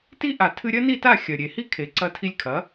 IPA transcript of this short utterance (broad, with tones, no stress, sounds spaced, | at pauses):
t i˥ ʔ a˩ tʰ ɨ˧ ɾʲ ɐ˥ n i˥˩ t a˥˩ xʲ ɐ˩ ɾʲ e˩ h i˥ kʰ e˩ ǀ ɐ˧ tʰ i˧ lʲ kʰ ɐ˩˥